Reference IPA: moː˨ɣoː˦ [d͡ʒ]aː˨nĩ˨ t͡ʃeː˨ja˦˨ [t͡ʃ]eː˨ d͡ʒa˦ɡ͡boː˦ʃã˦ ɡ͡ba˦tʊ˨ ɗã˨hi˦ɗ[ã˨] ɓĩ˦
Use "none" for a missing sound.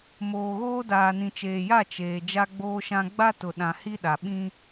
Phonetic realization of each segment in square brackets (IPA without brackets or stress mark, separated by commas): d, t͡ʃ, a˨